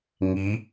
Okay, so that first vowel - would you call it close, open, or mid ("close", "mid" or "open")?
close